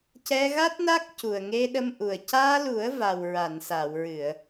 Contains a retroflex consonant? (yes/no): no